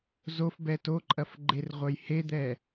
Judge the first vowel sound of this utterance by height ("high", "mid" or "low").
mid